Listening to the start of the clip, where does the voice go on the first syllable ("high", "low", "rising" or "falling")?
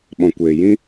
low